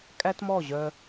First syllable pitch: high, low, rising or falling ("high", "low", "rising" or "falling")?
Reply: high